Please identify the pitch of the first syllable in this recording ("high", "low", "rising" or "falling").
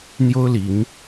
high